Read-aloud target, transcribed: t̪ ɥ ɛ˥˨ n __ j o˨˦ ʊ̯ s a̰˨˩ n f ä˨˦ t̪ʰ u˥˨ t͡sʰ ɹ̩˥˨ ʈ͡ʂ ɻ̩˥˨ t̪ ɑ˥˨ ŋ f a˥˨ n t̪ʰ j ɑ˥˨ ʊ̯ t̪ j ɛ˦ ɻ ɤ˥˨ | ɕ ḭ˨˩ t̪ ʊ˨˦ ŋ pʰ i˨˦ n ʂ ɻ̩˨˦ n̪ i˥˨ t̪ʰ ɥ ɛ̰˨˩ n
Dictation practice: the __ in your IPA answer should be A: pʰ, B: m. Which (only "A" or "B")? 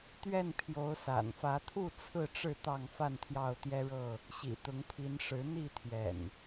A